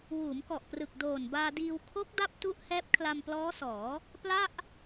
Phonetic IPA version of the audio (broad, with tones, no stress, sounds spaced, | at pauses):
w uː˩˦ m k ɔ˨˩ ʔ p r ɯ˨˩ k̚ d oː˨˩ n b aː˧ d iː˧ w kʰ o˦˥ k̚ d a˦˥ p̚ t u˦˥ ʔ h ɛː˦˥ p̚ kʰ l a˧ m p l ɔː˦˥ s ɔː˩˦ | p l a˥˩ ʔ